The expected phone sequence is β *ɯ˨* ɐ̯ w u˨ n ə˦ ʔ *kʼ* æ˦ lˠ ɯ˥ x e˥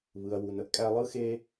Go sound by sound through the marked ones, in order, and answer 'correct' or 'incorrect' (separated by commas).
correct, correct